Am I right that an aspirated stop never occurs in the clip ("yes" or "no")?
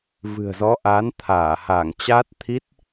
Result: no